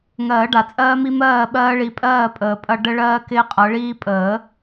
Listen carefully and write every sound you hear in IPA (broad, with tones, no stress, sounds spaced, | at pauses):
ŋ ɜː˨˩˦ ɖ a˨ t͡sʼ ɜː˦ m i˦ m ɜː˥˨ ɓ ɜː˦ ɭ i˨˦ pʼ ɜː˥˨ pʼ əː˨ pʼ ɐ˦ ɖ ə˦ ɭ ɜː˦ k ɪː˦ qʼ ɤ˨˦ ɭ iː˦ pʼ əː˨˩˦